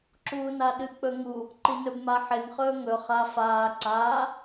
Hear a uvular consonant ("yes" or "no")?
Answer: yes